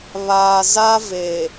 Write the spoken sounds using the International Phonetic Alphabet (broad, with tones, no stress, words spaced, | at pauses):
βaː˨za˦ ve˨